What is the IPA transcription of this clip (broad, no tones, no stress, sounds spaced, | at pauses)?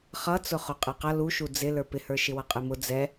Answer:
χ ʌ t͡s ʊ χ ʊ qʼ ɛ q ʌ l u ʃ u d͡z ɪ l ə˞ p ɪ h ə˞ ʃ ɪ w ʌ qʼ ɪ m ʊ d͡z ɛ